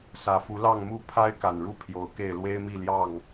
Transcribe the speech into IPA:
s ä˨˩ f u˨˦ l ɑ˥˨ ŋ m u˥˨ pʰ a˦ ɪ̯ k a˨˩ n ɻ u˦ pʰ j o˨˦ ʊ̯ k e˥˨ ɪ̯ l w e˦ ɪ̯ m i˥˨ l j ɑ˥˨ ŋ

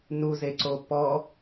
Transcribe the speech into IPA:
n u z e ǀ o p ɔ

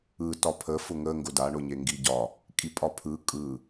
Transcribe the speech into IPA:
ɯ t ɒ pʰ ə f ʊ ŋ ə ŋ ɡ ʊ d a ɳ ʊ ɲ e ŋ ɡ i ɟ ɒ | kʼ i pʼ ɒ pʰ ɯ kʼ ɯ

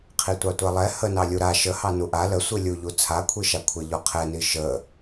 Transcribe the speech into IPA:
qʰ i tʷ ɑ tʷ a lˠ ɛ h ə n ɑ lʲ u ɾ a ʃ ə h ɑ n u ʔ a l ə sʷ i lʲ u ʎ u t͡sʰ a kʷʰ i ʃ a kʷʰ ɛ ʎ ɔ qʰ ɛ n i ʃ ə

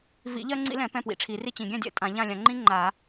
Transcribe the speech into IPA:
v ḭ˨˩˦ ʎ ɜ˥ ŋ͡ǀ ḭ˥ l ɛ̃˨˩˦ p ɛ̃˥˨ p w ḭ˨˩˦ ʈ͡ʂʰ i˨˩˦ r i˥˨ t͡ɕ ĩ˨˩˦ ɡʲ ɛ̃˥˨ dʲ ɛ̰˥˨ tʼ ã˨˩˦ ʎ ã˥˨ lʲ ã˨˩˦ ŋ͡ǃ ĩ˥ ŋ͡ǃ a˨˩˦

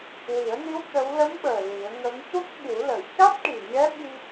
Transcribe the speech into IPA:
w i˨˩˦ ə̯ n i˧˥ w t̪ ə˧˥ w l ə˧˥ m ɓ əː˨˩ l i˨˩˦ ə̯ ŋ ə˧˥ ŋ c u˦˥ k̚ ɓ u˨˩˦ l ə˨˩˨ j c a˦˥ t̚ ʈ i˨˩ ɲ ɛ˧˥ ɓ i˧

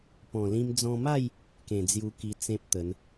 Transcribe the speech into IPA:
p ɔ̃˨˩ l ĩ˧ m d͡z ɔ̃˧ m a˥˧ j | k ẽ˨˩ d͡z j u˧ k i˧ t͡s ẽ˦ p̚ t̪ ə˨˦ n

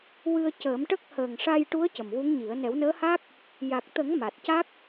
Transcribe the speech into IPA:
w ɨ˧ ə̯ c əː˨˩˦ m ʈ ə˦˥ k̚ h əː˨˩ ŋ ʂ a˧ j ʈ u˧˥ ə̯ c ə˨˩ m w u˧˥ ŋ ɲ i˨˩˦ ə̯ n ɛ˨˩˦ w n əː˧˥ h a˦˥ k̚ | j a˨˩ k̚ t̪ ə˨˩˦ ŋ m a˨˩ t̚ c a˦˥ k̚

